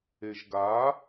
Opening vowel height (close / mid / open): mid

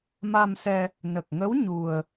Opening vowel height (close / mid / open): open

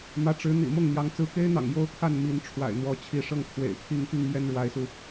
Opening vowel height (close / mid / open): open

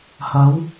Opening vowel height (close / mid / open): open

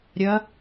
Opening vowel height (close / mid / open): open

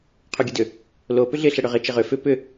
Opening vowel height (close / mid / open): close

